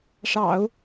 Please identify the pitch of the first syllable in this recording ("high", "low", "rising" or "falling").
low